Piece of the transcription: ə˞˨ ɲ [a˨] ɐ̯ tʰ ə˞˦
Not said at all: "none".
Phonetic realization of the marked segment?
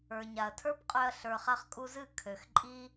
a˨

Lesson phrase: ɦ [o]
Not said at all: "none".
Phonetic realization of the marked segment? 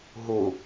u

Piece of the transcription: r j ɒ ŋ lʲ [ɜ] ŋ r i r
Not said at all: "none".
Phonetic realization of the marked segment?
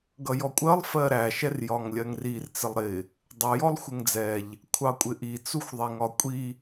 ɜ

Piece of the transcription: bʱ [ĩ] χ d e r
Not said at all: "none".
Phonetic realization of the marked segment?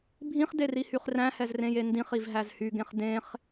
ĩ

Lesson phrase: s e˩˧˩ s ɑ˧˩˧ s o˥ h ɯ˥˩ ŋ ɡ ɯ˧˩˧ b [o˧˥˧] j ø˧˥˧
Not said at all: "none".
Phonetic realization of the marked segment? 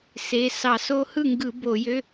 o˧˩˧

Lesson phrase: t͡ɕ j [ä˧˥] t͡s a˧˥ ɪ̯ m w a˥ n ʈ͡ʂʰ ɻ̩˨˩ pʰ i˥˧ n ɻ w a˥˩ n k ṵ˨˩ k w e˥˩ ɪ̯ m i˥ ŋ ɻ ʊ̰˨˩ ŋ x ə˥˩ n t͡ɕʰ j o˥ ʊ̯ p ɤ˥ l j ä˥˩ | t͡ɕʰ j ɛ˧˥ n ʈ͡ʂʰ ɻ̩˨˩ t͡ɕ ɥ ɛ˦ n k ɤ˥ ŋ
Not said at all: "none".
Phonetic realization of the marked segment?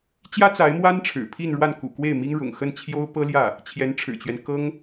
ä˥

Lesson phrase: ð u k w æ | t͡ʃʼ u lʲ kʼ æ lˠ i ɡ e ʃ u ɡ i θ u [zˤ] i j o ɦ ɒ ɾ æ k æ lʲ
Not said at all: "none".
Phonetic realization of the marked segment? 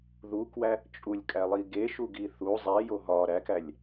zˤ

